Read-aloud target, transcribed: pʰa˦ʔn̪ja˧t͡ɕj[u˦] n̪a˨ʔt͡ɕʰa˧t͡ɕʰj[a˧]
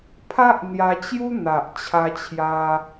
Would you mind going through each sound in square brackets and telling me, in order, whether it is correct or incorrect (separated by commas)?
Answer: correct, correct